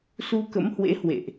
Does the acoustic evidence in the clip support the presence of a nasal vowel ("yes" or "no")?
no